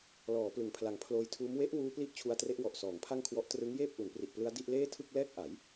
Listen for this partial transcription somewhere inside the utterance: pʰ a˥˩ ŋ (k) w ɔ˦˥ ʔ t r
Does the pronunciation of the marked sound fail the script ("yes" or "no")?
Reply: yes